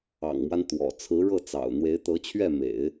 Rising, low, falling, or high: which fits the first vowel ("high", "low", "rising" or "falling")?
low